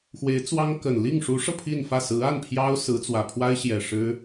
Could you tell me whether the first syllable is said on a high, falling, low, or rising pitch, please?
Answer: rising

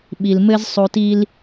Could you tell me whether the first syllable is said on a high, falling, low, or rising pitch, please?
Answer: low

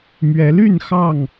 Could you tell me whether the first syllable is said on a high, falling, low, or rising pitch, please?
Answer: rising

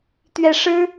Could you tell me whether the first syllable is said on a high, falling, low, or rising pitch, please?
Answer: low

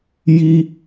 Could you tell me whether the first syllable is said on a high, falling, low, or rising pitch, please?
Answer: high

